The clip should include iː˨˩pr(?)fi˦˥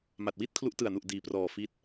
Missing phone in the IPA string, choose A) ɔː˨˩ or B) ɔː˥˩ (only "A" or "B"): A